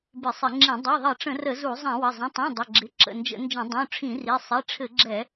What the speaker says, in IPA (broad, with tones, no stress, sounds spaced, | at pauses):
b ɪ˧˩˧ sˤ ɪ˧˩˧ ŋ͡ǁ ĩ˧˩˧ dˤ ɵ˩˧˩ ðˤ ɘ˧˩˧ ʈ͡ʂ ə̃˧˩˧ r ə˧˩˧ z u˧˩˧ zˤ ɛ̃˧˩˧ w ə˩˧˩ zˤ ə̃˩˧˩ tˤ ĩ˩˧˩ dˤ ə˩˧˩ ɡ͡ǁ ɪ˩˧˩ ǁ ə̰˩˧˩ n d͡ʒ ə̰˧˩˧ n d͡ʒ ə̃˧˩˧ dˤ ũ˩˧˩ ʈ͡ʂʰ ĩ˧˩˧ r i˩˧˩ sˤ i˩˧˩ ʈ͡ʂʰ ɘ˧˩˧ ɡ͡ǁ ɛ˧˩˧